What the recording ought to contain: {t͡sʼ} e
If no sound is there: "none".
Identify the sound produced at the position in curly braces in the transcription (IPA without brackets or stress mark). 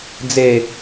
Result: d͡z